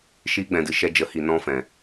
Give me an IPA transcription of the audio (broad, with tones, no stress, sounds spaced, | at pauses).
ʃ iː˧ ɡ͡b ɛ̃˨ d ɨ˨ ʃ ɛ˧ d͡ʒ ə˨˦ h i˨ n ɔ̃˧ f ɛ̃˨